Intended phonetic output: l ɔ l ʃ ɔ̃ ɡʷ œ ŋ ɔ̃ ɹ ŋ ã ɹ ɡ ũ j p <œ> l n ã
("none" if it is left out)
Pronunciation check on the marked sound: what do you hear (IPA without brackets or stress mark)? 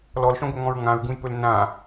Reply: ɵ